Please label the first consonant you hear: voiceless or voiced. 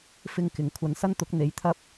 voiceless